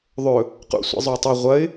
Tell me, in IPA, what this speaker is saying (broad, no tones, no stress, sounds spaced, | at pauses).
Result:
ðˤ ɵ | q ṵ sʷ ḭ zˤ ɵ ɪ̯ tˤ e ʁʷ ɐ ɪ̯